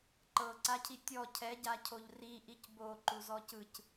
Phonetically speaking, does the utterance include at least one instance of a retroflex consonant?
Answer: no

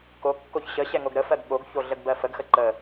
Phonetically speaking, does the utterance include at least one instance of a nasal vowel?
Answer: no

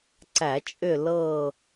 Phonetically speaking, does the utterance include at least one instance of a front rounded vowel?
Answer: yes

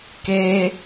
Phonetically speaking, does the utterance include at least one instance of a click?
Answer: no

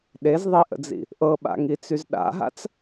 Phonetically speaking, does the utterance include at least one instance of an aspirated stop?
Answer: no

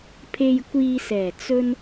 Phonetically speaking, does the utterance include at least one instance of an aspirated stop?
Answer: yes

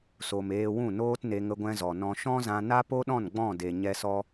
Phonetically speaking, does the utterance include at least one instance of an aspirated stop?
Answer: no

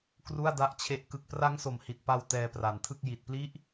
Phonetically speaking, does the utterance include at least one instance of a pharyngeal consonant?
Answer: no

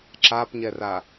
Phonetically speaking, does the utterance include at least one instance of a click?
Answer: yes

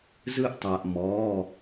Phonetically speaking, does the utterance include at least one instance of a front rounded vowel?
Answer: no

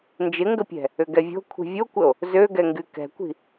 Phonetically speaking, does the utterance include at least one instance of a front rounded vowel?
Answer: yes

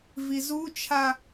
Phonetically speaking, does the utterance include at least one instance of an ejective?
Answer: no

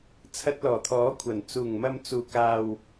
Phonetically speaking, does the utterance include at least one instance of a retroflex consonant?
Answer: no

